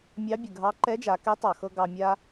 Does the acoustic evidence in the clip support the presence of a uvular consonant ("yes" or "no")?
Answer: no